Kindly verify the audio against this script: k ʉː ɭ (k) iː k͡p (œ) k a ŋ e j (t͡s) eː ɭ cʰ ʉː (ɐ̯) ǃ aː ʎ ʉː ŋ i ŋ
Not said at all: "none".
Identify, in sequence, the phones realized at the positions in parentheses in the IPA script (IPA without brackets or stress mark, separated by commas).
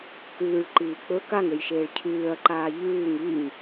ǃ, ɵ, ʃ, ɐ̯